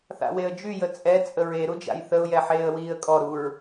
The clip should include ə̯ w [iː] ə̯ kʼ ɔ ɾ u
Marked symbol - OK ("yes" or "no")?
yes